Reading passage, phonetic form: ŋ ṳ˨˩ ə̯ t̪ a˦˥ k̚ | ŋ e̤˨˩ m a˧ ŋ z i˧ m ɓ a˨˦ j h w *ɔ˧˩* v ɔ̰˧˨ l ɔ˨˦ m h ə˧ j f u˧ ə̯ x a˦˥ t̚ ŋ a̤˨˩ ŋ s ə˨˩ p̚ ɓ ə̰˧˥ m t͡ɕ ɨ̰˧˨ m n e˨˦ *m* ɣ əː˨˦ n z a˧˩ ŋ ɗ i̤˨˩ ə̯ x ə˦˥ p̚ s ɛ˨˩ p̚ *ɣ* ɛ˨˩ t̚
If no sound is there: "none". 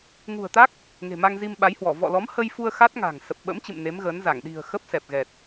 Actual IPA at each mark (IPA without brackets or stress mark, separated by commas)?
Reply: ɔ˧˩, m, ɣ